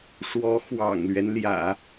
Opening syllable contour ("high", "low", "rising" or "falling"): rising